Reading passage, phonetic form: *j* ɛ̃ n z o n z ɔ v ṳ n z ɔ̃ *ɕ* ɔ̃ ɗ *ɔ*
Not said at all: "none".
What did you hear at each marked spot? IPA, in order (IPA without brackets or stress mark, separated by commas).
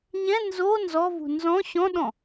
ɲ, ɕ, ɔ̃